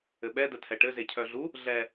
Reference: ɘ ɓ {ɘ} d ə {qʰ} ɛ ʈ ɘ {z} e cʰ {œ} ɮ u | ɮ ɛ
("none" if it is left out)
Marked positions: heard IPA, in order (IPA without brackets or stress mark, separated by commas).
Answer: ɛ, tʰ, z, œ